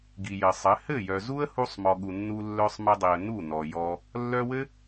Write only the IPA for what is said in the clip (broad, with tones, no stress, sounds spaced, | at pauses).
ɡ i˨ j ɘ˨ sˤ ɘ˨˦ h ɘ˦˨ j œ˨ z u˦ ə̯ h u˧ sˤ m ɔ˨ ɠ u˨ nː u˧ lː œ˧ sˤ m ɘ˧ dˤ i˨ ə̯ n u˦˨ n ɔ˨ j ɔ˧ | lː œ˧ w ɘ˦